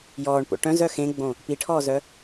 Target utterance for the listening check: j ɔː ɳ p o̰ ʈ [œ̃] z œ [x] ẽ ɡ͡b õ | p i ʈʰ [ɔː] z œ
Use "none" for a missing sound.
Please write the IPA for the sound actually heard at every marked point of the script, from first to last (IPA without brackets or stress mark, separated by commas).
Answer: œ̃, x, ɔː